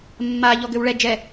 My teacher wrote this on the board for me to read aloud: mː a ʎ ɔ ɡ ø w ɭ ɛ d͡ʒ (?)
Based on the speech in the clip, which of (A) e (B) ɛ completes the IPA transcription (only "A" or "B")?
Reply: B